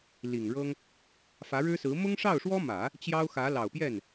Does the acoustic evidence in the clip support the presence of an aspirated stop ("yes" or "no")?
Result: no